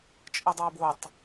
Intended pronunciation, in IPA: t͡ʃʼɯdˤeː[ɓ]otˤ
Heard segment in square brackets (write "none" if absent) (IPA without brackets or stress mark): b